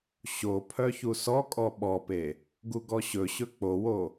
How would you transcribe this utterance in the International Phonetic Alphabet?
ɕ o pʰ œ ç u s ɔ kʼ ɔ ɓ ɔ p e | ɡ u ɡ ɔ ɕ ɵ ɕ ɵ k͡p o w o

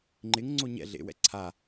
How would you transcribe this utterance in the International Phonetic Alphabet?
ŋ͡ǃ ɪ ŋ ŋ͡ǀ o ɲ ɛ̰ ɮ ḛ w ɛ̰ ǀʰ a

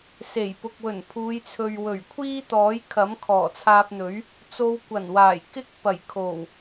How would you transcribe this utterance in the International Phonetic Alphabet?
s e˨˩ j p ʊ˨ k̚ w ɵ˨˩ n pʰ uː˨˧ j t͡sʰ ɵ˨ ɥ w ɵ˨˩ ɥ kʷʰ iː˥ t̪ ɔː˨˥ j kʰ ɐ˨˥ m kʰ ɔː˨˩ t͡sʰ aː˧ p̚ n̪ ɵ˨˥ ɥ | t͡s o˧ w kʷ ɐ˨˩ n w aː˨˩ j k ɪ˥ k̚ p ɐ˨˩ j kʰ o˨˩ w

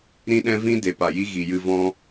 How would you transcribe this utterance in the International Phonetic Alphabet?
ɾ ĩ˦ ɗ ɛ̃˦ v ĩ˦ d e˨ p a˨ j i˦ ɣ i˨ j ɨ˧ v ɔ̃˦

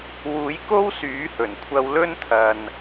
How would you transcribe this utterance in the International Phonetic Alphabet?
w uː˨˥ j k o˥ w s yː˨˥ h ɵ˨˩ n kʷʰ ɐ˧ w l ɵ˥ n t̪ʰ ɐ˨ n

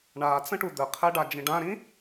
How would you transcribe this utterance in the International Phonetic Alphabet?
ɳ a t͡s ə̃ ʈ u d̪ ə qʰ ɛ ɖ a d͡ʒ ĩ ɖ ã ɾ ĩ

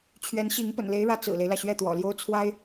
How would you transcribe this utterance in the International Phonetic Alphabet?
t͡ɕʰ ɥ ɛ˧˥ n ɕ i˧˥ ŋ p ə̰˨˩ n l e˧˥ ɪ̯ ɻ ä˧˥ t͡s ɹ̩˨˩ l e˦ ɪ̯ l ä˩ ɕ ɥ ɛ˥˩ t̪ w ɔ̰˨˩ l j o˥ ʊ̯ t͡sʰ w a˥ ɪ̯

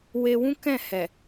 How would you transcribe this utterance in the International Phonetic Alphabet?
w e˧ w ũ˦ k ɛ̃˦˨ h ɛ˨

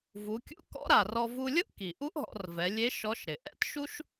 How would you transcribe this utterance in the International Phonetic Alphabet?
v u˩˧ kʲ ṵ˧˥ k ɔ̰˧˥ ɾ a˩ r ɔ˧ v u˧ lʲ ʊ˥ ʔ k i˩ ʔ u˥ ʔ ɦ ɔ̰˩˧ r v ɛ˩˧ lʲ e˧˥ ʃ ɔ˧˥ ʃ ɾ ɪ˩ ʔ ɛ̰˥ t ʃ u˥ ʃ

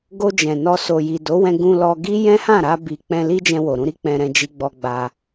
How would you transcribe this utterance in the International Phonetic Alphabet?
ɡ o˧ d͡ʒ ɛ̃˨ n ɔ˧ s o˨ j i˨ d o˨˦ w ɛ̃˧ ɡ ũ˧ l ɔ˧ ɡ i˦ j ɛ̃˦ h ã˦˨ ɾ a˧ b i˨ k͡p ɛ̃˧ l i˦ d͡ʒ ɛ̃˧ w o˨ ɾ ũ˧ ɾ i˦ k͡p ɛ̃˧ ɾ ɛ̃˧ d͡ʒ i˧ ɡ͡b ɔ˧ ɡ͡b a˧

